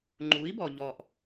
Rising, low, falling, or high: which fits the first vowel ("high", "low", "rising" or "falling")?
rising